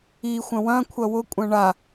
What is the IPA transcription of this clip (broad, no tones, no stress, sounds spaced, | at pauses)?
i xʷ ɐ̃ w ɐ̃ kʷʰ ɐ w ʊ kʷʼ ɐ̃ ɳ a